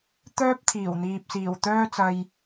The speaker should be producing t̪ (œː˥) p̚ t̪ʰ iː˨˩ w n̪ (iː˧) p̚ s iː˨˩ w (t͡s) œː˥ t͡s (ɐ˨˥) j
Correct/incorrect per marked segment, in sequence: correct, incorrect: iː˨, incorrect: t̪, incorrect: ɐ˧

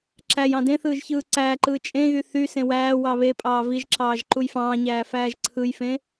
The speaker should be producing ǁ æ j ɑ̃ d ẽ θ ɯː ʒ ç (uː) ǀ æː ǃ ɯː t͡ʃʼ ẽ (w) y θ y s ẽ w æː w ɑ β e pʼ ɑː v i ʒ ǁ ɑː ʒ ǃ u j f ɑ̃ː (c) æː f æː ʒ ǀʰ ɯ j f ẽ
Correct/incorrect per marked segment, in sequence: incorrect: ɯː, incorrect: ɣ, incorrect: ɲ

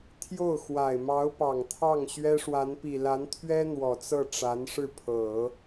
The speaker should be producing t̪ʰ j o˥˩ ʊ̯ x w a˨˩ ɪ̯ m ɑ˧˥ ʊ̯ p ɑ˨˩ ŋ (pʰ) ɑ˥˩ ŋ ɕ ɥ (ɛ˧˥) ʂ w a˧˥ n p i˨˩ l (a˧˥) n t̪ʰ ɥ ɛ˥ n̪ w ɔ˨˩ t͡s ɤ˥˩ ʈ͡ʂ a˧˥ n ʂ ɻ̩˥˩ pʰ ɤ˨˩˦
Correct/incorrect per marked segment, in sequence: incorrect: t̪ʰ, incorrect: ɛ˥, correct

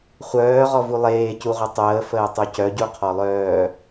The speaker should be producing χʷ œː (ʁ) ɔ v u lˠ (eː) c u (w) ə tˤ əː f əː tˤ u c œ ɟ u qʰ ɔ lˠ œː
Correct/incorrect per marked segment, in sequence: correct, correct, incorrect: ʁʷ

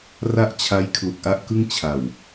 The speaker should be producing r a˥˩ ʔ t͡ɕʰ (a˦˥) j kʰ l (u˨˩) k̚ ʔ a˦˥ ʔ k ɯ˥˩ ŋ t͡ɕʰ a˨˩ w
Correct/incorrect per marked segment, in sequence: correct, correct

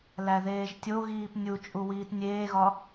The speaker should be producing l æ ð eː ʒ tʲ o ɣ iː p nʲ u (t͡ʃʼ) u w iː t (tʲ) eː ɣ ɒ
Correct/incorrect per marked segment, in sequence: correct, incorrect: nʲ

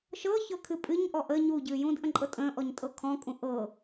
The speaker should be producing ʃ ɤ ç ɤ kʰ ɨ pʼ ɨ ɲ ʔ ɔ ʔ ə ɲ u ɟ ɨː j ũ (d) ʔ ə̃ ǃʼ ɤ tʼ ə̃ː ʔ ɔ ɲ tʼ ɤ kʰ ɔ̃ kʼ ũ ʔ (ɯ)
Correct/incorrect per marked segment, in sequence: correct, incorrect: ɤ

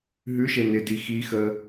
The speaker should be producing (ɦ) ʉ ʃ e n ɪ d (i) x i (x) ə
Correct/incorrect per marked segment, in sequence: correct, correct, correct

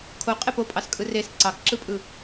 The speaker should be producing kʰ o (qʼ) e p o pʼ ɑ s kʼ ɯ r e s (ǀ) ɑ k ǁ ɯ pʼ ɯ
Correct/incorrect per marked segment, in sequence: correct, correct

